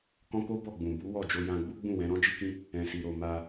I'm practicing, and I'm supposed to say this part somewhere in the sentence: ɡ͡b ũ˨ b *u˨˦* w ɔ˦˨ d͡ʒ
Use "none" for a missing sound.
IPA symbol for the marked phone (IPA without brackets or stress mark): u˨˦